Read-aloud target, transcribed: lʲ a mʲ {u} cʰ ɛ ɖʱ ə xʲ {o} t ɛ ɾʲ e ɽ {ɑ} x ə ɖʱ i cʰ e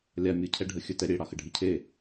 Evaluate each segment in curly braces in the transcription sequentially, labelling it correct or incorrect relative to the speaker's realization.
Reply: incorrect: ɯ, incorrect: ɵ, correct

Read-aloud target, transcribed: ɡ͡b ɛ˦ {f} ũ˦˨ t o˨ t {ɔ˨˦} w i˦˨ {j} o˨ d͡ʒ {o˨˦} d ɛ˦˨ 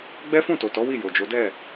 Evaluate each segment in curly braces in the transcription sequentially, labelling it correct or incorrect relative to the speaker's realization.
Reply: correct, correct, correct, correct

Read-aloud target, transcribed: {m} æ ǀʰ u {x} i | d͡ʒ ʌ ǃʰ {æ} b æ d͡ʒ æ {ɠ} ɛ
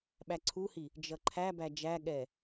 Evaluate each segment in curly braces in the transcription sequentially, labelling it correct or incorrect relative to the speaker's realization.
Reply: incorrect: ɓ, incorrect: h, correct, correct

